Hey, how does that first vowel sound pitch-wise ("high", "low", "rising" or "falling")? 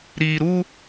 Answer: low